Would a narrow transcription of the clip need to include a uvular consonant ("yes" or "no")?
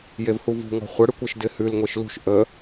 yes